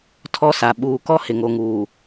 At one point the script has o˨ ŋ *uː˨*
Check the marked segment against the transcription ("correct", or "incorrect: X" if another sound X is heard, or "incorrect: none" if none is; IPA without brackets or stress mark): correct